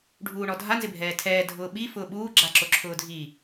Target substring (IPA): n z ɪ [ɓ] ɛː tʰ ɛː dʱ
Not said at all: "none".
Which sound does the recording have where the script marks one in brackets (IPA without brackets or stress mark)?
bʱ